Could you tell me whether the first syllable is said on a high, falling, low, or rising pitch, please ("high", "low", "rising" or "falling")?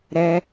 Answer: high